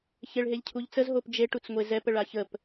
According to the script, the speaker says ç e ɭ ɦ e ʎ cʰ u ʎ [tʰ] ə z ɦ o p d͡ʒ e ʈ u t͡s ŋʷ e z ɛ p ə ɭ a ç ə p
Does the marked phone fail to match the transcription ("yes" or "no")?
yes